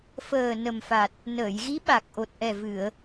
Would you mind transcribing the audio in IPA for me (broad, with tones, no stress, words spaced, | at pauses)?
fəː˨˩ nə˨˩mfa˨˩t̚ | nəː˨˩˨jɣi˧˥ ɓa˨˩k̚ʔo˨˩t̚ ʔɛ˨˩ vɨ˨˩˨ə̯